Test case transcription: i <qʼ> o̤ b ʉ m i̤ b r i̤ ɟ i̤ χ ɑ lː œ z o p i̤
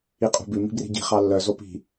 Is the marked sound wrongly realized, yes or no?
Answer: no